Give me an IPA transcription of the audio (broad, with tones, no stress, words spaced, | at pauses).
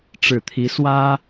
ʈ͡ʂɻ̩˨˩t̪ʰi˨˦ swä˦